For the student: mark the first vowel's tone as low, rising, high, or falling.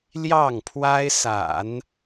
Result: falling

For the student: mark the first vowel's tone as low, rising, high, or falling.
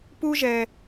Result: high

